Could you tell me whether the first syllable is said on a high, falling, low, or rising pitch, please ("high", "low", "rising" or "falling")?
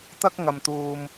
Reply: high